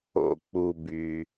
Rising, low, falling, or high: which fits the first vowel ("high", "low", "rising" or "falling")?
low